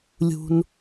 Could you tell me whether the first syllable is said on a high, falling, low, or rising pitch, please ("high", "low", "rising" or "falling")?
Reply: low